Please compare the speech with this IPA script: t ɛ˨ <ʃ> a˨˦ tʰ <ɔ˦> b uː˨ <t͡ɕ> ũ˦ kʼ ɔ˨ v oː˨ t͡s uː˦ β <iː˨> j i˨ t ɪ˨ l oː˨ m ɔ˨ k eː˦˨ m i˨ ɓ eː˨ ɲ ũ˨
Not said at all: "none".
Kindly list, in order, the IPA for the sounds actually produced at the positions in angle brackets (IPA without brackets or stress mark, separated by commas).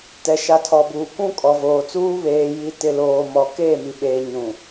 ʃ, ɔ˨, k, eː˨